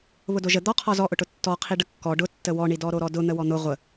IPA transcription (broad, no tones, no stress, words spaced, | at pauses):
βʊdoʒə d̪ɔqʰɔ zɔʔʊʈʊ tːɔ qʰiɖəkːɔ ɖʊtːə wɔɳi dɔɾoɾɔdʊ n̪əwɔn̪ʊ ʁʷə